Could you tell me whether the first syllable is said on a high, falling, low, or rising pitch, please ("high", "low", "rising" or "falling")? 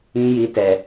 low